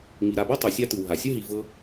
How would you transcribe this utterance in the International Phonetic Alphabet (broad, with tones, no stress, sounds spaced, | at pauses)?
ŋ i˨ ɾ a˨ b a˥ tˤ o˩ sʲ a˥ t ɯ˩ w ɦ a˩ sʲ ɯ˥ ɦ i˨ v ɤ˦